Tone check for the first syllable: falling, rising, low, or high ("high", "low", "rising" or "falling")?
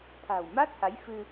low